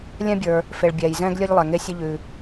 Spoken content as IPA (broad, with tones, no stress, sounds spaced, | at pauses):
lʲ ɛ̃˧ bʲ ə˞˩ | f e˩ ɭ bʲ ɛː˩ j z ɛ̃ː˧ ɡ lʲ e˧ ʎ lˠ ɛ˩ ŋ e˧ sʲ ə˧ ʎ ʉ˩